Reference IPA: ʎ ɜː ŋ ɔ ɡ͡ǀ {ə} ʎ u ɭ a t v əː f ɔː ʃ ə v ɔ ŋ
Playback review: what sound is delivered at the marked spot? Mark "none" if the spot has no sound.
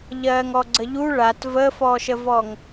ə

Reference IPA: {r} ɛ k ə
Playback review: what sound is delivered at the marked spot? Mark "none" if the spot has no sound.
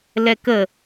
l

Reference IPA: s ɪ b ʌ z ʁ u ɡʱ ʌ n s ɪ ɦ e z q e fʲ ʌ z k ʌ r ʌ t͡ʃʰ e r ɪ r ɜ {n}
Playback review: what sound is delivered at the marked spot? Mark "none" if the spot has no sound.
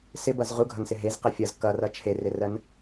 n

